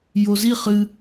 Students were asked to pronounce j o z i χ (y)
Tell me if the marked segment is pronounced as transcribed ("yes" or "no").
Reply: no